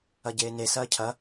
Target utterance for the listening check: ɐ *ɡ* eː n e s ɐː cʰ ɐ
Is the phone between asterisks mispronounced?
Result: yes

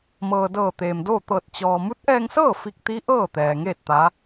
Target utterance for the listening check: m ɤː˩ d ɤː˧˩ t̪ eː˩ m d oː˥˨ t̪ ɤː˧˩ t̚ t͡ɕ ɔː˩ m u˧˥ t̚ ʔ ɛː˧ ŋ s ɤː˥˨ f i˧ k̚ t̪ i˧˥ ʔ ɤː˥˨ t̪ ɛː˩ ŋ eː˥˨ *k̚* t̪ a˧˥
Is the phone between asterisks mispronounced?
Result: yes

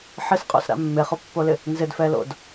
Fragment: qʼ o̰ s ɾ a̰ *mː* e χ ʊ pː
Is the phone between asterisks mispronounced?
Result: no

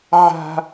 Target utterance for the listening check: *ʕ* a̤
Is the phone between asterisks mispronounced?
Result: no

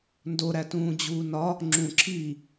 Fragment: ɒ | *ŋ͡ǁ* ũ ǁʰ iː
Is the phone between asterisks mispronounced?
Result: no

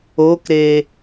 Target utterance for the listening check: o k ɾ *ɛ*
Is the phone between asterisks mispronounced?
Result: yes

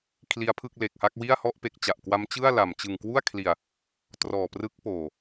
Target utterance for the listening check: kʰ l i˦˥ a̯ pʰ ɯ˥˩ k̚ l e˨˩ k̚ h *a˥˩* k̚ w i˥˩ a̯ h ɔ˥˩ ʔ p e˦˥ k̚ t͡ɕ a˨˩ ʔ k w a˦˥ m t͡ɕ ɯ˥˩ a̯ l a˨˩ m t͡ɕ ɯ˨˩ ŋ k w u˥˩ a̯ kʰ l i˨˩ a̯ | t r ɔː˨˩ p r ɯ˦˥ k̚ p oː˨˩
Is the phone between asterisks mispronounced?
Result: no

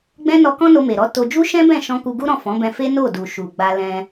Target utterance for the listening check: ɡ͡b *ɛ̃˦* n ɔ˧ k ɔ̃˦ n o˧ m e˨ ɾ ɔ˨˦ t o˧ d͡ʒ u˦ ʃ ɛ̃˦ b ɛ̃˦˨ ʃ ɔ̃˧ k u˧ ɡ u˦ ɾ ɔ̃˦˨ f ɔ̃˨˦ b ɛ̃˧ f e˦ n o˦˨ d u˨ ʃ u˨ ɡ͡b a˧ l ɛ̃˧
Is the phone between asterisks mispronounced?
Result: no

